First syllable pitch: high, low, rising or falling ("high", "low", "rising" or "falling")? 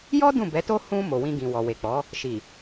high